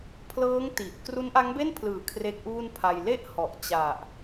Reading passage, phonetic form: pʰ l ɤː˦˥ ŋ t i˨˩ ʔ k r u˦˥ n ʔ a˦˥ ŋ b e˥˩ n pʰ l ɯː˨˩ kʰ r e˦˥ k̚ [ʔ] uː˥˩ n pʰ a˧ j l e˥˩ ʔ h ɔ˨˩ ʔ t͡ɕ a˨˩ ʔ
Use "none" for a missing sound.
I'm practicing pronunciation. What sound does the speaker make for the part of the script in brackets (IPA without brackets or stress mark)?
ʔ